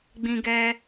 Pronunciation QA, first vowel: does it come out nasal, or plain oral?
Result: nasal